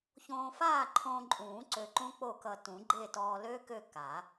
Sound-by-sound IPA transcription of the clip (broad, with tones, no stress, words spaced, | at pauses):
çõː˧faː˥˨ǃʰõː˧ǃʼũː˨˩˦ ǀø˧ǃũ˦˥k͡po˥˨kʌ˧ tũ˨˩˦ɡ͡ǃe˥˨ tɔː˧lø˦˥ kø˥˨ ka˨˩˦